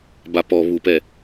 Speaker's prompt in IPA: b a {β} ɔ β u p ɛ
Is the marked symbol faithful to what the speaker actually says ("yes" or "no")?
no